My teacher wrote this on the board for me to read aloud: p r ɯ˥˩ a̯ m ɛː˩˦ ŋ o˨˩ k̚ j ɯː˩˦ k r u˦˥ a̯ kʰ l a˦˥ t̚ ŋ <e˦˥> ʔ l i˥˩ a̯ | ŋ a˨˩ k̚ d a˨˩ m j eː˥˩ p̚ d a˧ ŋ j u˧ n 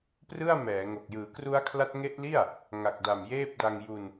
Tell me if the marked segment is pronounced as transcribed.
yes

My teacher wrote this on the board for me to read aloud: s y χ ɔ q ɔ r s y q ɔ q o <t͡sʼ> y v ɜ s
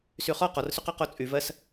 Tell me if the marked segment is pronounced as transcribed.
yes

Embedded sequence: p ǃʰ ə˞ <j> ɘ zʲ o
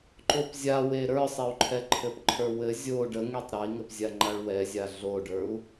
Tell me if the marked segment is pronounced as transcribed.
no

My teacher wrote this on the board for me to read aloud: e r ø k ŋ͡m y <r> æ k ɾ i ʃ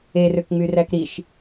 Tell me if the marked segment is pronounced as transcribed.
yes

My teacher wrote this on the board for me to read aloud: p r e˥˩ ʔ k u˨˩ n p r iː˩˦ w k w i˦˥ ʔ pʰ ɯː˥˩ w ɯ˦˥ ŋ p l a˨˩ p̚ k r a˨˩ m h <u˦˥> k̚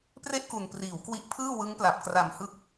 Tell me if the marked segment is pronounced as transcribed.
no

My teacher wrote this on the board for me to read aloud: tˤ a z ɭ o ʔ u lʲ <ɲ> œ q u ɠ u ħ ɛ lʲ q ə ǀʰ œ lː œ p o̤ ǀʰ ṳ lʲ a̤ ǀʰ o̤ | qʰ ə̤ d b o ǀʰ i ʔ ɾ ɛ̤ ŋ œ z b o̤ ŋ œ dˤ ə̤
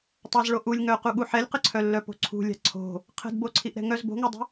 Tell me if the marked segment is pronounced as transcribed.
no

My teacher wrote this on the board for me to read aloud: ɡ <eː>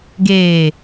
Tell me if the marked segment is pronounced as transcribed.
yes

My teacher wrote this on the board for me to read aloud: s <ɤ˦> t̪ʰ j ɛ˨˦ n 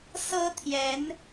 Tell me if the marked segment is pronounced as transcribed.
yes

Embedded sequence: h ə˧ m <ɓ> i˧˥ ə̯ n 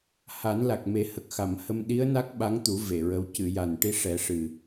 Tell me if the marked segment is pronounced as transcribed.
no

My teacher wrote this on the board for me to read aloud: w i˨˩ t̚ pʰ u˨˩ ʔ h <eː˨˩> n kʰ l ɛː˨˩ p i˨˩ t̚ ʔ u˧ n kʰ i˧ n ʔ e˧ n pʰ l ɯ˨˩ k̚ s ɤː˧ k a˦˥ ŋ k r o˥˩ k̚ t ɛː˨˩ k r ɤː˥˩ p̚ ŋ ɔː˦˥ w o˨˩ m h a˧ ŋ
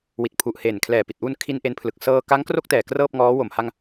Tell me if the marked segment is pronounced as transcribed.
yes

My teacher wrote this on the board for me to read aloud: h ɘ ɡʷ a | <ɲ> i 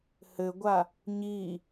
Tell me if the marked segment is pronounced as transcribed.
yes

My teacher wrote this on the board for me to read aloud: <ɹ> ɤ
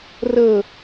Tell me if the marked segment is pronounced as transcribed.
no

